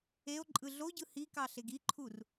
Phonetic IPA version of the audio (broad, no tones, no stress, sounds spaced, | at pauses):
e o̯ ǃʼ ɯ ɮ o ɟ ɯ h i k ɑ ɬ e ɡ i ǃʰ u r